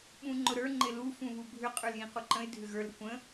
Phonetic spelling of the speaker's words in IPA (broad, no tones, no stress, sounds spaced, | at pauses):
ɓ ũ ŋ͡ǃ ʊ ɾ ə˞ ŋ͡ǃ ɪ l u f ũ β u bʱ ʏ qʼ ə˞ l j ĩ q u ǃ ə̃ ɪ̯ dʱ ʏ ɣ ə˞ l ɾ ə kʷ ə̃